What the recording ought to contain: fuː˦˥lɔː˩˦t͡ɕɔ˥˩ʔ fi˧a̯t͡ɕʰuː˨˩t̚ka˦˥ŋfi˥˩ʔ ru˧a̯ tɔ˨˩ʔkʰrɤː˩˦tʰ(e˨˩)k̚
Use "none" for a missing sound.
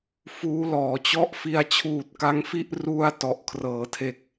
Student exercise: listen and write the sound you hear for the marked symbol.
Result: e˨˩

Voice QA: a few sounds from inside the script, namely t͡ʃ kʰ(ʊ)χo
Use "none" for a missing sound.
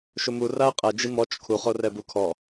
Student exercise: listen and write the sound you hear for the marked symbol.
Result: u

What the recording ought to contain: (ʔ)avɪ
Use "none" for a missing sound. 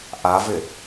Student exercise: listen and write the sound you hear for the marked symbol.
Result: ʔ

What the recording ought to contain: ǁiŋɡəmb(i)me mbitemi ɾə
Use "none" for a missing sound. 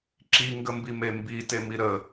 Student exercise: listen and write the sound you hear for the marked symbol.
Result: i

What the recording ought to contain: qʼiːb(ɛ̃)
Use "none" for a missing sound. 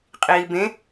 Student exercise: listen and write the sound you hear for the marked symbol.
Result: ẽ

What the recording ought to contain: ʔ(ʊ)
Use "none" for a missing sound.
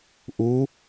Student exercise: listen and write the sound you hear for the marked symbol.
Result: u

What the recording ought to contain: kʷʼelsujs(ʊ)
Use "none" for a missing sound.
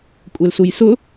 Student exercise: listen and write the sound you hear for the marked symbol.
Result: ʊ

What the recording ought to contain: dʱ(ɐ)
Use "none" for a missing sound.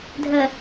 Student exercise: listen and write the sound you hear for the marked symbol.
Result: ə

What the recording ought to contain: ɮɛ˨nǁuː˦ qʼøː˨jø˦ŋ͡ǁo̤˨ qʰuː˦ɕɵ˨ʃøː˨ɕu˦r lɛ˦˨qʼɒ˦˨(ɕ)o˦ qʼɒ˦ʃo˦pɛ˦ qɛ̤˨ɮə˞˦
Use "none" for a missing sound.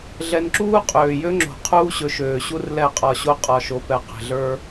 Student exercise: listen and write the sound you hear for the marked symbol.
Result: ɕ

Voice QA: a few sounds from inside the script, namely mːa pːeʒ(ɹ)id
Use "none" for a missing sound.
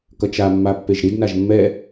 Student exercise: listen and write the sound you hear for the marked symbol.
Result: ɾ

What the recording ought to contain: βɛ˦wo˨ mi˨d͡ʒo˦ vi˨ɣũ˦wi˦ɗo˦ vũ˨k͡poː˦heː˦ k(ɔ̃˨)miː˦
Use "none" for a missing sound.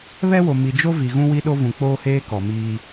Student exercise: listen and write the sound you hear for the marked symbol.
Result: ɔ˨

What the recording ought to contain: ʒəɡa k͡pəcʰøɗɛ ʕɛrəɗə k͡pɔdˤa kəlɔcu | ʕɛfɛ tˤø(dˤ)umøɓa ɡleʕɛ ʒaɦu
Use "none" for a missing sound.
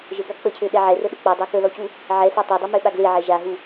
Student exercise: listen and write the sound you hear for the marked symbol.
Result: dˤ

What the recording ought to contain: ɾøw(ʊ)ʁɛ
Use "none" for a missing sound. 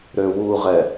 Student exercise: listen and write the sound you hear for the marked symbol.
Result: u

